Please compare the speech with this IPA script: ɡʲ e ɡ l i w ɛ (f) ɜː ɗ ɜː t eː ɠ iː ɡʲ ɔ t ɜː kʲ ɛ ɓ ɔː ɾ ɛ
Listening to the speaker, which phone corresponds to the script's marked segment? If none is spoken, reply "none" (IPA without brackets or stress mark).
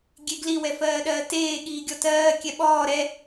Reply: f